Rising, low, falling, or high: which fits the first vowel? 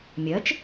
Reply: rising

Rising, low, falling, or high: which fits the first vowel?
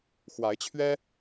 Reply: rising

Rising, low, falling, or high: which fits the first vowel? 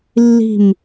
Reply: falling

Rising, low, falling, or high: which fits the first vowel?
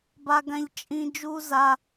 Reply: high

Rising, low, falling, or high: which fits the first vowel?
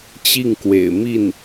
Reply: falling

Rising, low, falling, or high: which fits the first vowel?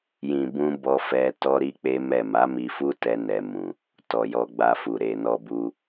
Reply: low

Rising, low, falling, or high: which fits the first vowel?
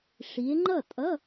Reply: rising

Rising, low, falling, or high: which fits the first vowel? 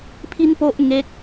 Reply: high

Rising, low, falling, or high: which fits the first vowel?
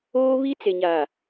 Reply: high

